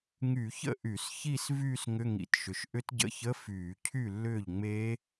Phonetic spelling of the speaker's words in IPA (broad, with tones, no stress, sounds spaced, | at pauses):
ŋ y˧˩˧ ç ə̰˥˩ ʔ y˧˩˧ s ç i˥˧ s v yː˥˧ s ŋ ʏ˧˥˧ ŋ ḭ˧˩˧ t ʃ ʏ˩˥ ʃ ʔ ʏ˦˥ t ɟ ə̰˧˥˧ ç ə˧˥˧ f yː˧˩˧ cʰ y˥˩ lː ʏː˥˩ ʎ ŋ͡m e˦˥